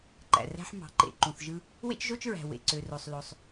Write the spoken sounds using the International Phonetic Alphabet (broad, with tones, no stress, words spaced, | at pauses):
ǃæ̰˩ræ̤˥ħ mɑ̤˩ǃḛ˩ ǃũ˩θʒɯ˥ | wḛ˥t͡ʃʒo˥t͡ʃɹæ̤˩ wḛ˩ ǀø˩ro˩sˤlo˩sˤ